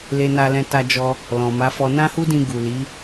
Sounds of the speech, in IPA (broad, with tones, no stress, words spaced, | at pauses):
le˧na˧lɛ̃˧ ta˧d͡ʒɔ˧ | lɔ̃˨ma˨˦fɔ˧ nã˦hu˦dĩ˧ ɡu˨li˨˦